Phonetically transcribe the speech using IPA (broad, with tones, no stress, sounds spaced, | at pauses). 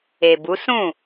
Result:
e˨ b u˨˦ s ũ˦˨